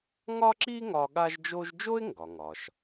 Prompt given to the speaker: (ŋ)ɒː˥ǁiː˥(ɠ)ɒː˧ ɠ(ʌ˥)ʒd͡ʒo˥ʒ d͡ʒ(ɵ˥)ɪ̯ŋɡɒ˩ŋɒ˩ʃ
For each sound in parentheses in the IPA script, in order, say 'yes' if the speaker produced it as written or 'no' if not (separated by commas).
yes, no, no, no